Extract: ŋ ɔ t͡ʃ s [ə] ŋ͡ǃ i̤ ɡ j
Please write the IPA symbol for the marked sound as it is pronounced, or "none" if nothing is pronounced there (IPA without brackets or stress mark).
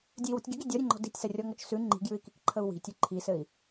ʉ